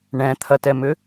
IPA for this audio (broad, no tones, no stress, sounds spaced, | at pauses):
ɳ ɛ̃ t̪ʰ ɐ t ɛ m ʏ